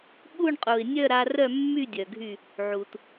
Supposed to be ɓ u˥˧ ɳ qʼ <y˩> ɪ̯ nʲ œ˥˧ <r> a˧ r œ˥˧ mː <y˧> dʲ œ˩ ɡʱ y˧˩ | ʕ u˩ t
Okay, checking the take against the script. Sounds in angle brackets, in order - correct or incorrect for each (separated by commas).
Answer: incorrect, incorrect, incorrect